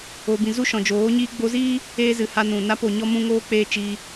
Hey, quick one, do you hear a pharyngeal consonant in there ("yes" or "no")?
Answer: no